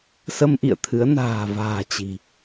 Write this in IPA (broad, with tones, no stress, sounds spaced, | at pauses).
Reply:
s ə˧ m ʔ ḭ˧˨ ə̯ t̪ʰ ɨ˨˦ ə̯ n a̤ː˨˩ v a̤ː˨˩ t͡ɕ i̤˨˩